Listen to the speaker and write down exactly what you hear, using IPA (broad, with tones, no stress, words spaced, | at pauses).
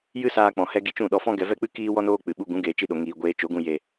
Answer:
jɨ˦saː˧k͡pɔ̃˨hɛ˧ ɡi˧t͡ʃũ˦˨ɗɔ˧fɔ̃˦ ɡɛ˧vɛ˦k͡pɨ˦ kiː˧ wɔ˧noː˧ k͡pɨ˨ɓu˧ ɡũ˨˦ɡeː˨t͡ʃi˧ɗo˨ ŋiː˨ ɡʷeː˧ t͡ʃo˨˦ɡũ˧ je˨